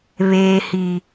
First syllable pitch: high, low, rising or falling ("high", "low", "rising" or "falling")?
low